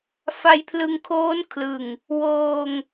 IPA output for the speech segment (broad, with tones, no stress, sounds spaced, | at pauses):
f a˧ j pʰ l ɯ˧ ŋ kʰ oː˦˥ n kʰ l ɯ˨˩ ŋ | w oː˧ ŋ